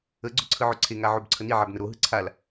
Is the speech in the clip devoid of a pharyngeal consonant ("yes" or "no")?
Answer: no